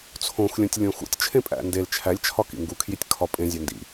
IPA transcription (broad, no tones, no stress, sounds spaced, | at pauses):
t͡sʰ õ x lʲ õ tʲ lʲ õ x ṵ tʲ t͡ʃʰ ẽ pʼ æ̰ n d e l t͡ʃʰ æ lʲ t͡ʃʰ ɒ k ḭ ŋ ɡ u kʰ j i tʲ kʰ ɒ pʼ ẽ zʲ æ n d ḭ